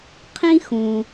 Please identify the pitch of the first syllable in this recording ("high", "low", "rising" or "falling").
high